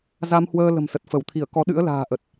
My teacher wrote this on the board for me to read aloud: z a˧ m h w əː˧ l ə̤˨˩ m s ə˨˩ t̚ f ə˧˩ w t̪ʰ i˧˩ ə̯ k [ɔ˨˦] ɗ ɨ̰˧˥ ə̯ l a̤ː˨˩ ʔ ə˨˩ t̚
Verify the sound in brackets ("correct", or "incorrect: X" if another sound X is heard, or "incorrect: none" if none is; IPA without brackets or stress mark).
correct